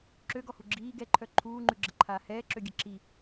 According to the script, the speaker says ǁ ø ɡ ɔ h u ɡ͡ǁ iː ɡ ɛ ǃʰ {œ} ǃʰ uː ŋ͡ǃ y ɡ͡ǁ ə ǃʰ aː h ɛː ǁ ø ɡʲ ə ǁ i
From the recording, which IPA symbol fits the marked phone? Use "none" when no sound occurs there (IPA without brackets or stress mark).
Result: œ